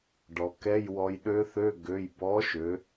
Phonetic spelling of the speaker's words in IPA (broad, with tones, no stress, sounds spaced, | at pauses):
ɖ ɔ˩˧ k ɛ˧˥˧ j w ɔ˧ j ɗ ø˦˥ θ ø˧˥˧ ɡ ø˩˧˩ j b ɔ˨˥ ʃ ø˩˧